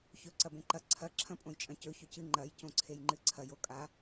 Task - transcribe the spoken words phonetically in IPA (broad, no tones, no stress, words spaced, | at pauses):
çɵ ǀɐbẽǃɐ ǀʰɐ ǁʰɐ̃pʼõjt͡ʃʼɐ̃cɵ çɵcɨ ŋ͡ǃɐj cõǀʰejŋ͡ǃɨǀʰɐj okʼa